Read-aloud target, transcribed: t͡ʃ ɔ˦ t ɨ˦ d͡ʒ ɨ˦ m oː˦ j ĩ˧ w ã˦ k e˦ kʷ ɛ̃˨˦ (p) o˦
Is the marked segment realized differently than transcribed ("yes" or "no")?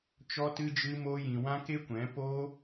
no